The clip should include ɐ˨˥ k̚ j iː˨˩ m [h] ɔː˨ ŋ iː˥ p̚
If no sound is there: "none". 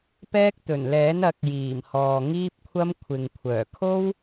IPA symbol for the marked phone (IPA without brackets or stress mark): h